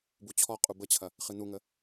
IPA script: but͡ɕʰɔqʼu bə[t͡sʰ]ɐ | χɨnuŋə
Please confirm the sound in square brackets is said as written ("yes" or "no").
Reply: no